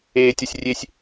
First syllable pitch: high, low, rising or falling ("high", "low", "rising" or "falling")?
high